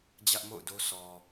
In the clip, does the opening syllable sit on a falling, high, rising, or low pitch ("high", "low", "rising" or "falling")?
high